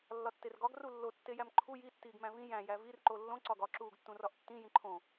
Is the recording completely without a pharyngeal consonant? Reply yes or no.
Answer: yes